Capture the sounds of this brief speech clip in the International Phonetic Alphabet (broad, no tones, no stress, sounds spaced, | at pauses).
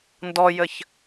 n d ɔ j ə ç